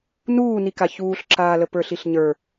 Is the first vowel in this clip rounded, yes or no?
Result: yes